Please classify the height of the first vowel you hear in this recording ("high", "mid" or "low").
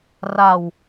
low